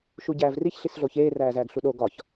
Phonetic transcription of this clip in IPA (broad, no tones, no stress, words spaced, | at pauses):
ʃuɟæːvriç ɬisɮoçeː ræːzæːɡɬuɗo ɡɒç